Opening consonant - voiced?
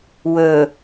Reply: yes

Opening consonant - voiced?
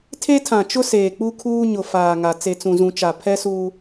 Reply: no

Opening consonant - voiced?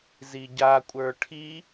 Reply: yes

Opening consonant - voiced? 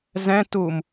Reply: yes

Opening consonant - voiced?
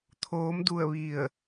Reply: no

